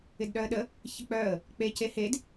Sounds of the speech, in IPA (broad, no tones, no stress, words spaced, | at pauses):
ɪdɗœə̯ɗə | çɪk͡pœə̯ | k͡pe cehed